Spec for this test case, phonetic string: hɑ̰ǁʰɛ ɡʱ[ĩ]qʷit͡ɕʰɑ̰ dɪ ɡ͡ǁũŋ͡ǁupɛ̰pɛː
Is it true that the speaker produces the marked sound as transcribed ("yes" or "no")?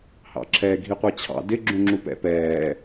no